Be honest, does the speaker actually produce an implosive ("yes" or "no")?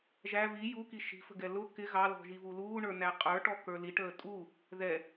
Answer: no